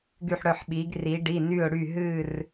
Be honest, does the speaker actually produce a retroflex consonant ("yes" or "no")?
yes